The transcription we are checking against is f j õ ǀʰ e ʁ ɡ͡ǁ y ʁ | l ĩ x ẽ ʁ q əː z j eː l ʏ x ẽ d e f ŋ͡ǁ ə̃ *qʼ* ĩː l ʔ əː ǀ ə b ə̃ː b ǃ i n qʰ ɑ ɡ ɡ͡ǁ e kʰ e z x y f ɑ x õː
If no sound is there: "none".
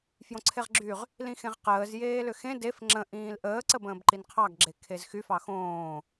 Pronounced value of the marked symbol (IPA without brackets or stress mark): ʔ